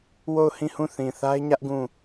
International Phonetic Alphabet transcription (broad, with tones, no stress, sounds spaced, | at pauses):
w o˦˨ ʊ̯ h ĩ˦˨ h ũ˦˨ θ ĩ˨ θ a˦ ɪ̯ ɲ ä˦ ʔ ɡ ũ˦˨